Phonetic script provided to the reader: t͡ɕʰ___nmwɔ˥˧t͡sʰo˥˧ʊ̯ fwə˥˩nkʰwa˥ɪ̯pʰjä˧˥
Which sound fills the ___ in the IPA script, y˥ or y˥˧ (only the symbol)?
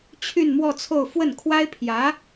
y˥˧